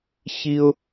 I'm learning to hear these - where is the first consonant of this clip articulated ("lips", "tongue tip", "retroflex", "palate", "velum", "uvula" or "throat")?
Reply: palate